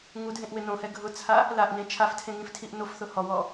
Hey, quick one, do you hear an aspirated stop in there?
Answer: yes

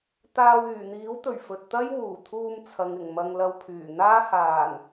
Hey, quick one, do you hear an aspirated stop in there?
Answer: yes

